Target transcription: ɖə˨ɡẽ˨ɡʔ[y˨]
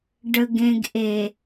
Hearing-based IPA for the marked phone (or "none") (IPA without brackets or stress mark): e˨